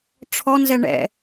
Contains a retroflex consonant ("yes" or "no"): yes